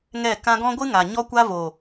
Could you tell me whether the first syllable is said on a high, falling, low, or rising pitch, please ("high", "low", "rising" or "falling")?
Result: falling